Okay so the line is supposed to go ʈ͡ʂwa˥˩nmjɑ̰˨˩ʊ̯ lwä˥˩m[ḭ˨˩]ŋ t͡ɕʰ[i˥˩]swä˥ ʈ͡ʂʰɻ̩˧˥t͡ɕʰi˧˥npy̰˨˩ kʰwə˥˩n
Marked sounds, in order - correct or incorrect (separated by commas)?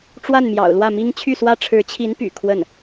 incorrect, incorrect